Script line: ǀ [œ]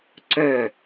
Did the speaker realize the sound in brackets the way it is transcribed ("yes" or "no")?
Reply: yes